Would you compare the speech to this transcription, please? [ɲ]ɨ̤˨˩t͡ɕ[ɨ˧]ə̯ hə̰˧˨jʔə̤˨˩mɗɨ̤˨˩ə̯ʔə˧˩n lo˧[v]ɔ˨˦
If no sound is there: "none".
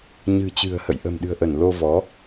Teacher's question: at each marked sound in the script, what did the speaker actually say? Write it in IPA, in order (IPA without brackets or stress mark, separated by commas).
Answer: ɲ, ɨ̤˨˩, v